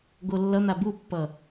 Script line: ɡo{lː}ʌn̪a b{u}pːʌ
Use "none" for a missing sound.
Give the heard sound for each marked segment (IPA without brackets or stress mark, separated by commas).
lː, u